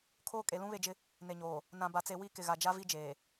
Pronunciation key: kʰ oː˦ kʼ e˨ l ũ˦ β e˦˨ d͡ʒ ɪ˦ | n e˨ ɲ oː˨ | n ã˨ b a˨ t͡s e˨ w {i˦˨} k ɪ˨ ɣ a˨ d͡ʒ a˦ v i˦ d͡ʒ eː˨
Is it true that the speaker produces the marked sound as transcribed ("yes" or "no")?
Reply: yes